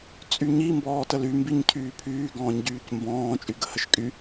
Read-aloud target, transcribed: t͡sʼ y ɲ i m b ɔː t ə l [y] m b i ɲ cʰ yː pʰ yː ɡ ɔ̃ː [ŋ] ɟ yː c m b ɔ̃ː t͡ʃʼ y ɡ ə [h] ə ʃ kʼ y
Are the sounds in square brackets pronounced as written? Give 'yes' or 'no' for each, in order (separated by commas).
yes, no, yes